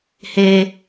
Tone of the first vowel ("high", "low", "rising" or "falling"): high